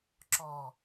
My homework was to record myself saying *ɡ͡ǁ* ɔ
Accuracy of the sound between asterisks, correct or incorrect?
incorrect